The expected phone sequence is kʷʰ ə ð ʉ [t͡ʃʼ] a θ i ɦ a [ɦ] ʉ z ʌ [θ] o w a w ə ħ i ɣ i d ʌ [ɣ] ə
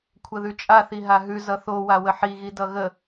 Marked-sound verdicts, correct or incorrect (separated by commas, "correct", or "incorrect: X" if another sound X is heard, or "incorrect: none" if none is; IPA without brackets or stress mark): correct, correct, correct, correct